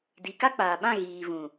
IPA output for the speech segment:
di˨ka˦k͡paː˨ɓã˦˨ ɣiː˨vũ˨

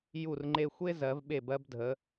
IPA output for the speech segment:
ju˧˩rŋ͡ǃe˧xʷe˥ zɜ˩˧vɓe˧˩bɜ˧b dʱə˩˧

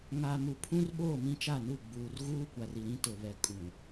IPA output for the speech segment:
ŋa˨ mu˨pʰũ˦rɓoː˦˨ mĩ˦t͡ʃa˦˨nu˦˨ ɡ͡buː˨rɣuː˦kʷa˨ri˨ ɾĩ˦tʊ˨ βɛ˨kʼũ˨

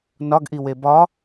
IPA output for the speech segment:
nɒɡʔiwe bɒ

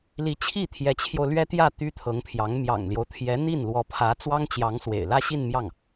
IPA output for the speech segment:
li˧˥t͡ɕʰi˥˩ t̪ʰjɛ˧˥t͡ɕʰjo˧ʊ̯ lɥɛ˥t̪jä˥˩ t̪y˥t̪ʰɤ˧˥ŋpʰjɑ˧˥ŋ mjɑ̰˨˩ŋljo˦ʊ̯t̪ʰjɛ˧˥n̪i˥˩n lwɔ˧˥pʰä˧˥ t͡swɑ˥ŋt͡ɕjɑ˧˥ŋswḛ˨˩ɪ̯ lä˥˧ɕi˥˧nmjɑ˥˩ŋ

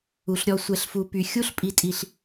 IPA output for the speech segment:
u˨ɬɾʲɔ˧ sʷɛ˨ɬfu˨ py˨ xʲu˦ɬ pʼi˨tʼi˨ɬ

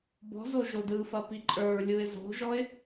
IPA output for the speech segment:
bɔ̤zo ʒodɯfɐpi ǃʼə˞ɹlʲuɪ̯ zo̤ʒɔɪ̯

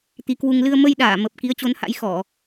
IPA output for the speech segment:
t̪i˨˦kwu˧ŋ lɨ˧ə̯ mə˧jɗaː˧˩mə˨˩p̚ ki˨˦ə̯t͡ɕo˨˦nha̰˧˥jxɔ˧˩˨

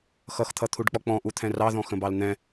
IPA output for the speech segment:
xʌxt̪ʰʌt̪ʰuɖk͡pɔ k͡pɔ̃ʔut̪ʰɛ̃ rɑðɔ̃xə̃bɑl n̪ɛ̃

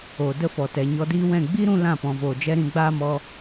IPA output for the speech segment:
oː˨də˦˨fɔ˨ tɛ˨ɲɔ˧diː˦wɛ̃˦˨ ɡ͡bi˦ɾũ˧ lã˦˨pɔ̃˨voː˨d͡ʒɛ˦ ɾĩ˧ɡ͡baː˦mɔ˧

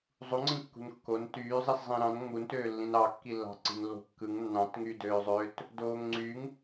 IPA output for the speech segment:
zˤuŋ͡ǀĩkːṳn kːon tyːzˤis zˤĩɾɑ̃n ŋ͡muntøːlːĩn ɑkːilːɑ̤ ǀi̤nlːo̤kːɯŋ nːɑ̃tŋyːdøːzˤøːt | doːŋŋ͡ǀyŋ

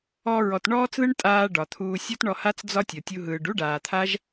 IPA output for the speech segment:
ɔ˧ɹɔ˨t ɳɔː˦t͡sðɯ˦ɳtʼaː˧ ɖɒ˨t̪ʰuː˧ sʲɔ˦tɳɔ˧ ha˦t͡sd͡zɒ˦tʲɔ˨ tʲu˧ ɦɯː˨ɖu˦ɖaː˨t̪ʰa˦ʒ

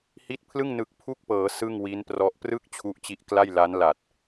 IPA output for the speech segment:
hi˦˥t̚pʰlɯ˥˩ŋ nɯ˨˩k̚pʰu˥˩k̚pɤː˩˦ sɯ˥˩ŋwi˦˥nprɔ˦˥ʔ prɯ˥˩k̚ t͡ɕʰu˦˥ʔt͡ɕi˦˥ʔkla˥˩jla˦˥n la˨˩t̚

